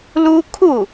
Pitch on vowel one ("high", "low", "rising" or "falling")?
high